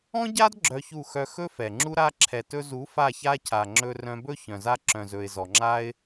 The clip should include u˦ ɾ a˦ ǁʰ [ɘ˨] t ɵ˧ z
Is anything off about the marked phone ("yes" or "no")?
yes